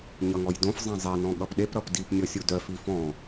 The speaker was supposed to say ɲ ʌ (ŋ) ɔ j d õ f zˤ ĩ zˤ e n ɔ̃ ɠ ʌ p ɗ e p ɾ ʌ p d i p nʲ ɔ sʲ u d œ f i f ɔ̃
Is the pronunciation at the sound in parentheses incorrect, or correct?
correct